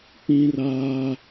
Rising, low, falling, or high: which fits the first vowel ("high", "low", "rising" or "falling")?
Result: high